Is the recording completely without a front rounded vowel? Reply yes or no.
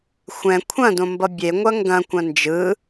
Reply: yes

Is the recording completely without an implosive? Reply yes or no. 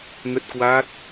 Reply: yes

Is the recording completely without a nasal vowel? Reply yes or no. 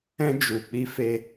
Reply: no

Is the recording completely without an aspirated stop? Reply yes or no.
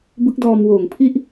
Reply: no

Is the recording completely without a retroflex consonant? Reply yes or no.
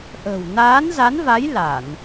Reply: yes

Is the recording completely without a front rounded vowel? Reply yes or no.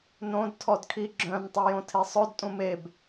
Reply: no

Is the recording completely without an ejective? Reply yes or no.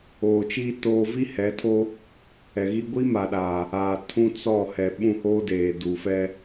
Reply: yes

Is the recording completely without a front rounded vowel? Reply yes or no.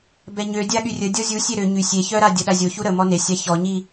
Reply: no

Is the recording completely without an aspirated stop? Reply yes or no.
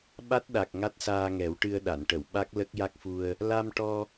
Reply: yes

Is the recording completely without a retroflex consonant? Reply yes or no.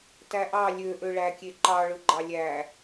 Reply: no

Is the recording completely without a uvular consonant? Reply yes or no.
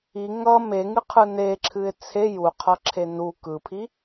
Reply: no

